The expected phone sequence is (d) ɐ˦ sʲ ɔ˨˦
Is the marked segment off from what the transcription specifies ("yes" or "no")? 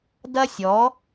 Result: no